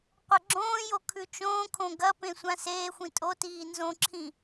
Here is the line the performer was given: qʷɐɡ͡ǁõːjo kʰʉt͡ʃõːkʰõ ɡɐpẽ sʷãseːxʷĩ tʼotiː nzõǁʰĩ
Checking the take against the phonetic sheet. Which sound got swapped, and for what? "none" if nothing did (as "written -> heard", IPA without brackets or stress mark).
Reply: none